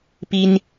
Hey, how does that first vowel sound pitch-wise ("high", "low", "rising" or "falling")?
high